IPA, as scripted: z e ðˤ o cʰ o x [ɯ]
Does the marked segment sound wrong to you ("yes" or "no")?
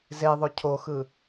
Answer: no